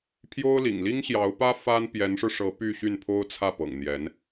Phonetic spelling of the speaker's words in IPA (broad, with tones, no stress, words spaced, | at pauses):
pʰjo˥ʊ̯lḭ˨˩ŋ li˥ŋɕjɑ˧˥ʊ̯pä˥ fa˥n pjɛ˧˥nʂɻ̩˧ʂɤ˧˥ py˥˧ɕy˥˩npʰo˥ʊ̯ t͡sʰä˥˩pɤ̰˨˩ŋ n̪jɛ˧˥n